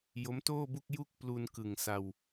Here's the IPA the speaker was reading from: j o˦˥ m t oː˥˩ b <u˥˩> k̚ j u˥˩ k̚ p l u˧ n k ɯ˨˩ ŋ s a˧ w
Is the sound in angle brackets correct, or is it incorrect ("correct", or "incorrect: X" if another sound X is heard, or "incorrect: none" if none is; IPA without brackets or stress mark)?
correct